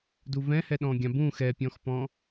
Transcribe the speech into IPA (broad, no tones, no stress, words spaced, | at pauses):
duvɛ̃hɛ ɗɔ̃ɡʲãbũ xɛpʲɔ̃xpɔ̃